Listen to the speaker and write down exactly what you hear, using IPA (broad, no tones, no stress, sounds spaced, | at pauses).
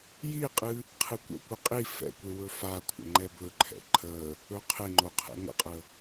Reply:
j i qʼ ɨ | qʰ ɨ kʷ ə̰ kʷ ɨ qʼ i f ɛ̰ kʷ e w ɵ f a kʷʰ ə̰ ŋ͡ǃ ɛ b ɵ ǃʰ ɛ̰ ǃʰ ə | ɵ qʰ e ŋ͡ǃ o qʰ ɛ̰ ŋ ə̰ qʼ ə